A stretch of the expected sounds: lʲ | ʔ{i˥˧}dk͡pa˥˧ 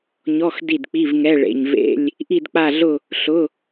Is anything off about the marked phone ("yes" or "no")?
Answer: no